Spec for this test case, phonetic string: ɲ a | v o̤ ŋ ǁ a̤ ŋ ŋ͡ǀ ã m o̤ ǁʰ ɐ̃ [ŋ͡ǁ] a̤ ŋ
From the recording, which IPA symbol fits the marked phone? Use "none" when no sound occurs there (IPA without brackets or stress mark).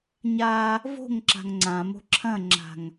ŋ͡ǁ